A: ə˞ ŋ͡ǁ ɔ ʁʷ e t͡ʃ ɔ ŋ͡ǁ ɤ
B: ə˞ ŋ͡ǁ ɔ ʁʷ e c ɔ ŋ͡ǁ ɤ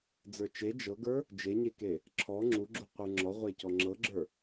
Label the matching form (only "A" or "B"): B